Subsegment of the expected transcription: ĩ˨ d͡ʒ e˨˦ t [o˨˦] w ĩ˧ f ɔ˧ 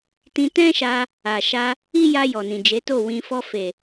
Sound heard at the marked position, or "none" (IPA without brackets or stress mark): o˦˨